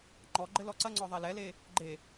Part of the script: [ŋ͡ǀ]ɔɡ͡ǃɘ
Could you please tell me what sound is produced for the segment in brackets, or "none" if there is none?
ŋ͡ǃ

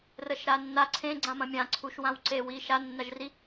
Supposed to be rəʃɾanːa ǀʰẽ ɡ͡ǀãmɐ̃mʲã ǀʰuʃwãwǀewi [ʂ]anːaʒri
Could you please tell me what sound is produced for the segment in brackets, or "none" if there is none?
ʃ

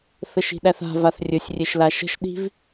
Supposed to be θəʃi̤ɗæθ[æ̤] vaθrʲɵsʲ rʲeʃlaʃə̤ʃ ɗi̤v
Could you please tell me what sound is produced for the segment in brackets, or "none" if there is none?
a̤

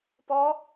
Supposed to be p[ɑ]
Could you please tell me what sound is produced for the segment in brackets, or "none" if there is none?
ɔ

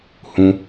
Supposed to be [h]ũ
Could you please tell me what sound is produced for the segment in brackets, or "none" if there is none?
h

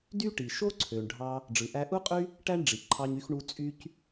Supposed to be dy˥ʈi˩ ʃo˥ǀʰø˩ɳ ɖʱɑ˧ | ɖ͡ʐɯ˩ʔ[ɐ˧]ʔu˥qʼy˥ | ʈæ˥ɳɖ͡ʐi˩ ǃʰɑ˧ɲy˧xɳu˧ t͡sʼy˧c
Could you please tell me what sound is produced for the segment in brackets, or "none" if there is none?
æ˧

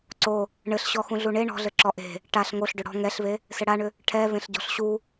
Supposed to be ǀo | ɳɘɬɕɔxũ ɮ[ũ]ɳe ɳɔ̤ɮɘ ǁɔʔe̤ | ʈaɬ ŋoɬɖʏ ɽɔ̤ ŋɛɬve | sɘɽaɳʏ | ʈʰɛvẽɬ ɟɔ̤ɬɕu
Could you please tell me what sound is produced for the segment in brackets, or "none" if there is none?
u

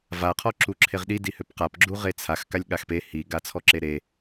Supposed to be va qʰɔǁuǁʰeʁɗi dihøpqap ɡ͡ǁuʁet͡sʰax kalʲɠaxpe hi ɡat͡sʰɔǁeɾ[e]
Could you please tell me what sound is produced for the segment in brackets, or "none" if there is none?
e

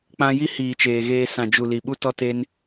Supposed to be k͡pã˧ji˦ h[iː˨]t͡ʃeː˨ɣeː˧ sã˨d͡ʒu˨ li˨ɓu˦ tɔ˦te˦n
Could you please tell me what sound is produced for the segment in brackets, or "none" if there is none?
iː˨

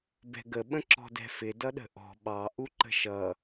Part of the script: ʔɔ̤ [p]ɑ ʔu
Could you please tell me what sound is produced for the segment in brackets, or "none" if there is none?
ɓ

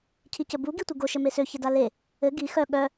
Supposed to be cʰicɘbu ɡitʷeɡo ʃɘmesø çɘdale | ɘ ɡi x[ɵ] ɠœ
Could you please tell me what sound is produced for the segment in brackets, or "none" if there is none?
œ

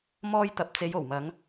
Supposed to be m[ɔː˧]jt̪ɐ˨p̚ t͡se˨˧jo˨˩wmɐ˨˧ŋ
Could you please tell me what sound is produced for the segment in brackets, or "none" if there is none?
ɔː˧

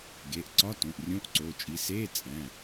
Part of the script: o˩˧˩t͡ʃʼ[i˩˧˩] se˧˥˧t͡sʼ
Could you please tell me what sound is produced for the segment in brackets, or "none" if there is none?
i˩˧˩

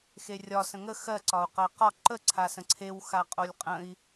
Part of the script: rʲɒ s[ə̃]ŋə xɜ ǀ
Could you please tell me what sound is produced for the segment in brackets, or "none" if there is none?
ə̃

